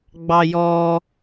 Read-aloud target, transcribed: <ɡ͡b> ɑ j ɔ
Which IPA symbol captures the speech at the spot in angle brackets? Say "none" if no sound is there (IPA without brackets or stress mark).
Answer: ɡ͡b